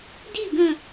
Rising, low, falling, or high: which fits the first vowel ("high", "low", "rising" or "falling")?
falling